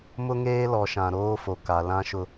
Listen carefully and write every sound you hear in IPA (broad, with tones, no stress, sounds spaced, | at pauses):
m ʊ˦ ŋ eː˦ l ɔ˨ ʃ ã˨ ɾ oː˦ f o˨ k a˨ l ã˦ ʃ ʊ˦